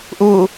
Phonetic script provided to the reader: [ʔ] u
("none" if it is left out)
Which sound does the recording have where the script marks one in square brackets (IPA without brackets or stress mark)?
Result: ʔ